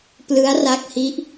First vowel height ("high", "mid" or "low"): high